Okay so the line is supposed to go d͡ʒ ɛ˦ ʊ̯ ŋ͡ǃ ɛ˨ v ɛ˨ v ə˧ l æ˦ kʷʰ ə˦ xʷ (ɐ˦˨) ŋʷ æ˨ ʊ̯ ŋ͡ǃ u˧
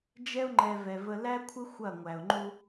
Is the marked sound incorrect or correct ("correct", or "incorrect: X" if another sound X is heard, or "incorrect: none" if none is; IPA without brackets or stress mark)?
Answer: correct